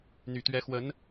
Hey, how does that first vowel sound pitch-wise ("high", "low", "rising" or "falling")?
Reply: low